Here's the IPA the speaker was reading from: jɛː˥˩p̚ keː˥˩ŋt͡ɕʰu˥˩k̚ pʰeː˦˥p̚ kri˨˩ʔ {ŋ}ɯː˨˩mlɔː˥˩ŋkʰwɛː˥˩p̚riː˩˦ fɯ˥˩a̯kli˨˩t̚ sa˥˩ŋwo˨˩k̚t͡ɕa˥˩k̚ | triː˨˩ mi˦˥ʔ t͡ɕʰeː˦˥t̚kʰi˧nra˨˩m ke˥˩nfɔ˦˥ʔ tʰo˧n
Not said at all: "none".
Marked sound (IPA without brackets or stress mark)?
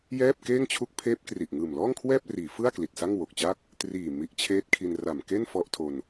ŋ